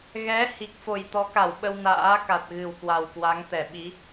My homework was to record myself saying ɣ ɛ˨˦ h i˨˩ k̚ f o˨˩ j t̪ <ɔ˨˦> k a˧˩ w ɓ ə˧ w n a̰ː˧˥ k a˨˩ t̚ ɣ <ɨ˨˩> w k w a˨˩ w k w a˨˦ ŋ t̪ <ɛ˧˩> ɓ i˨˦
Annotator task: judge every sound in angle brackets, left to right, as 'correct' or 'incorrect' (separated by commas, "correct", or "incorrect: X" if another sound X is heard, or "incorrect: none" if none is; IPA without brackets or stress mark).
correct, correct, correct